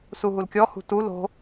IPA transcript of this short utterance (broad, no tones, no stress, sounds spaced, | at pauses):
s u ɦ u l kʲ ɔ h ṳ t u l o̤